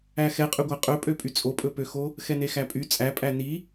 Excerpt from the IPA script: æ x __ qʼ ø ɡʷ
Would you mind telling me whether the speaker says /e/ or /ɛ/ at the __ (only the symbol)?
ɛ